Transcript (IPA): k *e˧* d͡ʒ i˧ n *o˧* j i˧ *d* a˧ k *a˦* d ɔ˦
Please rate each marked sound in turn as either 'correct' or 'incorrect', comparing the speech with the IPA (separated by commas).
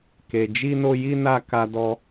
incorrect, correct, incorrect, correct